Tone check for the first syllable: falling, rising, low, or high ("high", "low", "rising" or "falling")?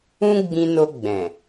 high